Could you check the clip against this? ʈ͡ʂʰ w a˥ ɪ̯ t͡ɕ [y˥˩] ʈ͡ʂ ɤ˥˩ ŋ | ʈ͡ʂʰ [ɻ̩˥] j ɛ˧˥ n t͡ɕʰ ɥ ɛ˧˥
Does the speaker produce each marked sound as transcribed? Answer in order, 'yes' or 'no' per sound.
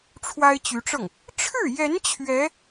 no, no

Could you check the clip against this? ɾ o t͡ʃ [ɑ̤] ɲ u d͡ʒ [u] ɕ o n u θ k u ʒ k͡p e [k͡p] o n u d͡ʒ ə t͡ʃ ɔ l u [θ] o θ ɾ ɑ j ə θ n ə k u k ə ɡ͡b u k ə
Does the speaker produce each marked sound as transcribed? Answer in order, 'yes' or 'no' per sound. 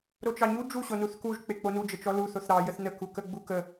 no, yes, yes, yes

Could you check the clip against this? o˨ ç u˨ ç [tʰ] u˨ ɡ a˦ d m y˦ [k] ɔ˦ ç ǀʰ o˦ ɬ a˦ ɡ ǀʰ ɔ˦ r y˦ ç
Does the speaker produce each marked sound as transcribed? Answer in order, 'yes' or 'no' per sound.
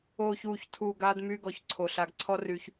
yes, no

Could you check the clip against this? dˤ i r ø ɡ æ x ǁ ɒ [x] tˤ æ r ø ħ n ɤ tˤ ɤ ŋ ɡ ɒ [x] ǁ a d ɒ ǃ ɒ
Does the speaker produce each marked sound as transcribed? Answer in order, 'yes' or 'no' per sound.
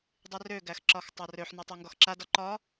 yes, yes

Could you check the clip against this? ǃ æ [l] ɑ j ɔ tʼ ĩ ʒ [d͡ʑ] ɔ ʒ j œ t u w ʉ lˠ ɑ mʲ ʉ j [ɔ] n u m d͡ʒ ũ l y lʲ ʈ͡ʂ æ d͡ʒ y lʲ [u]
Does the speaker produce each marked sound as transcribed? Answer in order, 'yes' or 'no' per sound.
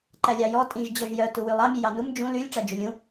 no, yes, no, no

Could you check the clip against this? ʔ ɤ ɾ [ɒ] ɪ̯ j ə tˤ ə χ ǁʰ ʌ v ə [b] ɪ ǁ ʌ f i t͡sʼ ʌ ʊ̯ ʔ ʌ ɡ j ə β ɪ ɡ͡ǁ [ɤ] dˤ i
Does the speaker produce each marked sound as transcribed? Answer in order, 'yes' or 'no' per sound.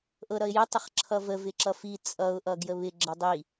no, no, yes

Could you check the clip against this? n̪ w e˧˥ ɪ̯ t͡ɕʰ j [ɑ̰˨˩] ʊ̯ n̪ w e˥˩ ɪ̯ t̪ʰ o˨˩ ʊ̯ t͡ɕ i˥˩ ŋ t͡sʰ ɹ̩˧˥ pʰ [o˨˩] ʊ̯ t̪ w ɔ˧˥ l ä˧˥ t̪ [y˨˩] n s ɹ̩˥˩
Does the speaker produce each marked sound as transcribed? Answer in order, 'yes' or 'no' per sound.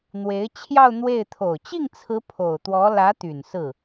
no, yes, yes

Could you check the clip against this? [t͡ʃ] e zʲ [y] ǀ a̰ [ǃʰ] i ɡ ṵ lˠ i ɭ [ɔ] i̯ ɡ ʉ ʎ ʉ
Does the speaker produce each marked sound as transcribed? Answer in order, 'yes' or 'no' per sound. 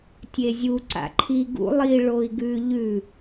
no, no, yes, no

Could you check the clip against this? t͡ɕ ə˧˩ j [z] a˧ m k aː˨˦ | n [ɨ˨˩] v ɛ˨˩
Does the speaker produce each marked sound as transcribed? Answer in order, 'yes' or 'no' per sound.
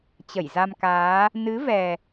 yes, no

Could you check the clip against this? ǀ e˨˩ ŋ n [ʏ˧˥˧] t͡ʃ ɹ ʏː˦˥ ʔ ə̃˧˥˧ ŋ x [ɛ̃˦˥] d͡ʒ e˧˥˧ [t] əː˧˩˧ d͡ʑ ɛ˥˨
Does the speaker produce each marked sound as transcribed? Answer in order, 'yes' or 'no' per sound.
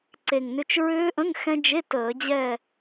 yes, yes, yes

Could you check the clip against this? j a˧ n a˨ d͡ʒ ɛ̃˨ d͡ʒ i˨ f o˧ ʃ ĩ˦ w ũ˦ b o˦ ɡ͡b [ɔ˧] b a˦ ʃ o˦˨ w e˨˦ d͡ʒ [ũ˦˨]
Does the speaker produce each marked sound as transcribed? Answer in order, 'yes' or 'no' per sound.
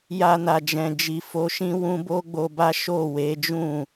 no, yes

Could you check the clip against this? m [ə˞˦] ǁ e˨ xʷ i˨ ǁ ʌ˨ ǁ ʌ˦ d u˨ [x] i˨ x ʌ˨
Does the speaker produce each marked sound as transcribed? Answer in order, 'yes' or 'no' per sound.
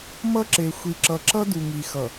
no, no

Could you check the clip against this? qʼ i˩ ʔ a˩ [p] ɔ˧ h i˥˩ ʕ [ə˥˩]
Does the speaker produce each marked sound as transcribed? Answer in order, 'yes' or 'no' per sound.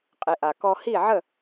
no, yes

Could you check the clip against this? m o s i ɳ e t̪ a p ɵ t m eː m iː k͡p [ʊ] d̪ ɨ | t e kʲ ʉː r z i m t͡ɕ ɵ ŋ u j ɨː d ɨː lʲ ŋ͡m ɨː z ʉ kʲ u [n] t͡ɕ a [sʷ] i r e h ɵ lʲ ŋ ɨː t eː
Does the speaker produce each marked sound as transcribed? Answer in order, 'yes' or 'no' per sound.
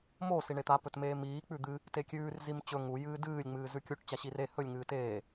no, no, no

